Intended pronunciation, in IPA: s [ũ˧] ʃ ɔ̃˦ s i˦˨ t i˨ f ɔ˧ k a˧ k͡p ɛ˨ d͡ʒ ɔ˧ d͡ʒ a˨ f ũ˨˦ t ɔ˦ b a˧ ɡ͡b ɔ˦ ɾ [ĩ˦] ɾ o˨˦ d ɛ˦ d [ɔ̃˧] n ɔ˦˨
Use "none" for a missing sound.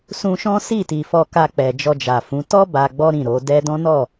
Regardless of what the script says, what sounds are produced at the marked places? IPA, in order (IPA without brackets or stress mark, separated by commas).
ũ˧, ĩ˦˨, ɔ̃˦